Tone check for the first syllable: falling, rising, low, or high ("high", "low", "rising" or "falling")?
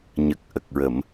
low